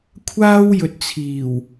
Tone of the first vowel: high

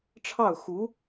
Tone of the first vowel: falling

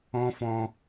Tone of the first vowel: high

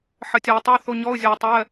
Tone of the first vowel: low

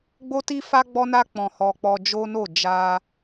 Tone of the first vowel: high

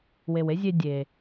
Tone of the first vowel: low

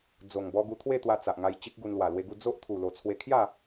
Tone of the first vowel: low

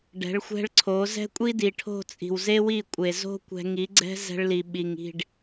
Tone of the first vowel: rising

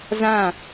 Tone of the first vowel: falling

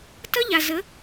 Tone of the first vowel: high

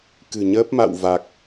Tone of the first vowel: low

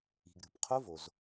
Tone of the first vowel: low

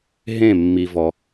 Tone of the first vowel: falling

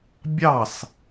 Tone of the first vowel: falling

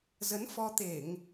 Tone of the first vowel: rising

